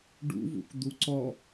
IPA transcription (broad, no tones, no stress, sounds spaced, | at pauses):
ɖ ṵ v ṵ k d̪ u ǀ ɔ